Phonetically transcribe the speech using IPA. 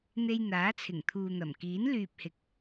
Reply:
n̪ e˧ j n̪ aː˨˥ t͡sʰ ɪ˨˩ ŋ t̪ʰ uː˨ n̪ ɐ˨˩ m k iː˨˥ n l yː˨ p̚ h ɪ˨˥ k̚

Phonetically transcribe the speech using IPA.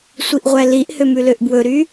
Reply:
sʷ i ʔ ʁʷ æ l i ʔ h ø m ʉ l ø ʔ b w ɵ ɾ y

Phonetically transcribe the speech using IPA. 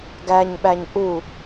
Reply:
ɡ æ ɲ ɓ æ ɲ ʔ u

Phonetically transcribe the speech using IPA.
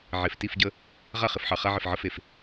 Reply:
ʕ e˨ f t i˦˨ f ɟ ə˦ | ʁ a˦˨ χ ɪ˨ f ħ ɑ˨ χ a˦ ʕ ɪ˨ f ʕ ə˦ f e˨ f

